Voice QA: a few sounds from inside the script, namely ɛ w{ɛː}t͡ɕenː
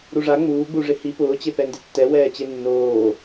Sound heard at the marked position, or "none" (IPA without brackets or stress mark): ɛː